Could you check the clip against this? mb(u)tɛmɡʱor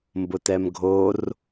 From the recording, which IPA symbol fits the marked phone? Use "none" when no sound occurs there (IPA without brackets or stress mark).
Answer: ʊ